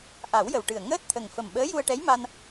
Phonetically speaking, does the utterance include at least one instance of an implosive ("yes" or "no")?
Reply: yes